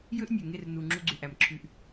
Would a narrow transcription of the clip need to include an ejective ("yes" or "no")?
no